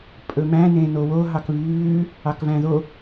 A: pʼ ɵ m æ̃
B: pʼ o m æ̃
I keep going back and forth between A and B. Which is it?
A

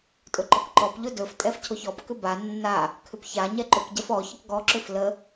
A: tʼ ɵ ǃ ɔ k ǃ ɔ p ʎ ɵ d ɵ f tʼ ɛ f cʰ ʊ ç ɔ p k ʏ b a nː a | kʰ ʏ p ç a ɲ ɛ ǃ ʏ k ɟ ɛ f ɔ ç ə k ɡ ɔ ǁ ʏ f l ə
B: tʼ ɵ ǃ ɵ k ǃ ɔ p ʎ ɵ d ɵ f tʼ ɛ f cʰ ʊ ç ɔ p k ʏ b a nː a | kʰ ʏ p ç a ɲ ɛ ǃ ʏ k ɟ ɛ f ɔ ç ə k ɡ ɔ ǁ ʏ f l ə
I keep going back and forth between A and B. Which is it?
A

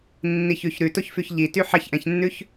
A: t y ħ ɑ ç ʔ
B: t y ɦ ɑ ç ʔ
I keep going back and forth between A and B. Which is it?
A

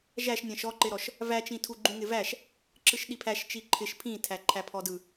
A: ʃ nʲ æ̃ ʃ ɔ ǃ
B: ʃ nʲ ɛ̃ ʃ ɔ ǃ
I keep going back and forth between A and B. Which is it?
A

